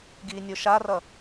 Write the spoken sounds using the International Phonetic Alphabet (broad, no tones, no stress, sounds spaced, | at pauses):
ɡ iː nʲ o ʃ a r ʌ